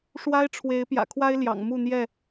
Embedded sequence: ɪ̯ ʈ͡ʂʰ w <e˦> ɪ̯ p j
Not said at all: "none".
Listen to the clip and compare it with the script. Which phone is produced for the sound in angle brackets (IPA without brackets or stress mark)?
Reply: e˨˦